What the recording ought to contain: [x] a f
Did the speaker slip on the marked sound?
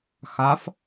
no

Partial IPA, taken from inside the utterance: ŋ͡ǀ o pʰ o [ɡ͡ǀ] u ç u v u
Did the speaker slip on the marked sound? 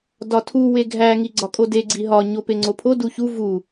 yes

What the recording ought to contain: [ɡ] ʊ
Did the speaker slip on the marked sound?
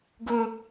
no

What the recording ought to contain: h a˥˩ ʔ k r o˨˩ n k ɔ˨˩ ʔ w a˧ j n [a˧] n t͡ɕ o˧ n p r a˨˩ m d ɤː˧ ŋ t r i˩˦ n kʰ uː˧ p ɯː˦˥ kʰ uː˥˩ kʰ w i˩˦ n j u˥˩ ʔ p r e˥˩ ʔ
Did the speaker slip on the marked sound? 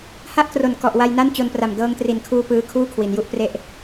yes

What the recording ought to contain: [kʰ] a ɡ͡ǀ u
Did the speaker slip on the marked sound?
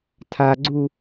yes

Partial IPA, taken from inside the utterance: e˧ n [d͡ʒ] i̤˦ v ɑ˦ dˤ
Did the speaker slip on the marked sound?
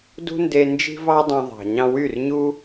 no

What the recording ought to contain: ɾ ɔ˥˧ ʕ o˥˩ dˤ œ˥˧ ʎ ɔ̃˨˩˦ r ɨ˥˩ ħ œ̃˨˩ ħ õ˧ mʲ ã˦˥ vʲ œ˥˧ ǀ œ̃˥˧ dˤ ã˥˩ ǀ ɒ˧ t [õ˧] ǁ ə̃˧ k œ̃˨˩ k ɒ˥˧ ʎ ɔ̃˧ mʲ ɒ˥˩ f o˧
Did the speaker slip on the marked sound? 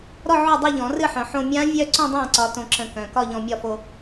no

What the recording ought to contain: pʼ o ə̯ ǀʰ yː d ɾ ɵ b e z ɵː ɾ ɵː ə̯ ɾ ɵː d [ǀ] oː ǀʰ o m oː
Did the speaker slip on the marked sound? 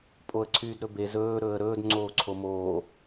yes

